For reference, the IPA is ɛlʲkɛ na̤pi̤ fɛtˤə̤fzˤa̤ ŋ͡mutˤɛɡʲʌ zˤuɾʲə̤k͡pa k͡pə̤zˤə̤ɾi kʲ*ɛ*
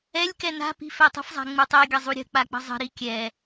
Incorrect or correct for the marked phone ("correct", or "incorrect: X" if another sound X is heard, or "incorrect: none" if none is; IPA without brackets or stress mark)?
correct